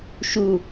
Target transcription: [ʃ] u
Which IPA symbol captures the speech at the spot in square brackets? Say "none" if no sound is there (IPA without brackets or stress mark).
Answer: ʃ